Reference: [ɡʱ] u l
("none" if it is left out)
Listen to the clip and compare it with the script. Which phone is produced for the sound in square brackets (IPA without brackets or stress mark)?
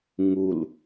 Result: ŋ